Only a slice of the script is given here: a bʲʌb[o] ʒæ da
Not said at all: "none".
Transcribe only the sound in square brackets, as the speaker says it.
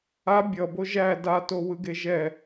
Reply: o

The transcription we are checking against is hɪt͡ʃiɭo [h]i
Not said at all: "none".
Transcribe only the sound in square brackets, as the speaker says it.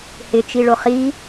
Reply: χ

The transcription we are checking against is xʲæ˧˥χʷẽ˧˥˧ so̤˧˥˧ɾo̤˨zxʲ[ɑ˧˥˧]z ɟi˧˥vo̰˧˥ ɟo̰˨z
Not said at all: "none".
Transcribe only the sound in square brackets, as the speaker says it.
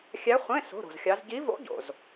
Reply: ɑ˧˥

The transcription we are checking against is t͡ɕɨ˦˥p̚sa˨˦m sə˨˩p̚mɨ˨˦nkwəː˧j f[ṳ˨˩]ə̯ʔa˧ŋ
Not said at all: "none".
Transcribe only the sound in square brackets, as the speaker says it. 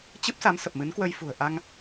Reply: ṳ˨˩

